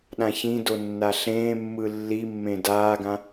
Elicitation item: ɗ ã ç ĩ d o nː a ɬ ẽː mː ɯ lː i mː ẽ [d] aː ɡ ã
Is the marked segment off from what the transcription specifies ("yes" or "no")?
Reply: no